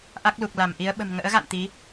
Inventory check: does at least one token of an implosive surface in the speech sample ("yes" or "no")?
yes